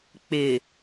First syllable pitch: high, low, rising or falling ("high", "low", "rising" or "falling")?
low